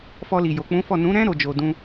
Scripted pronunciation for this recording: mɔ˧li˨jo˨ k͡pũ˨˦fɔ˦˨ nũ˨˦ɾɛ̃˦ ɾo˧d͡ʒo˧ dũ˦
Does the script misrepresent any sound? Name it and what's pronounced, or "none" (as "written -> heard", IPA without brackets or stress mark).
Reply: m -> f